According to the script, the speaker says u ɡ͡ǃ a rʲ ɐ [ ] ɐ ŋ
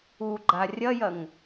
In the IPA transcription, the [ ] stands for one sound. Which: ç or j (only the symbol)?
j